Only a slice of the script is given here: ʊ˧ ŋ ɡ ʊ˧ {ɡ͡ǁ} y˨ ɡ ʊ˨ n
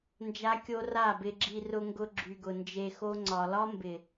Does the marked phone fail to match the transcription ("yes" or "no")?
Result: no